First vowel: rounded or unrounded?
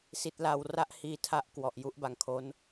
unrounded